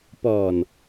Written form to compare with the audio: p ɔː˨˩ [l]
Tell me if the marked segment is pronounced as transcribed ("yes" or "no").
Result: no